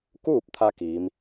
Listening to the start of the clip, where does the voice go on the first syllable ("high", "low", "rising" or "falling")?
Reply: falling